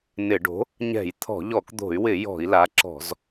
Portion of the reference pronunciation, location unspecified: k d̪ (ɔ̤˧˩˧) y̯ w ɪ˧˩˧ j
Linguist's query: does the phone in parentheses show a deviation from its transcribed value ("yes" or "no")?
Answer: yes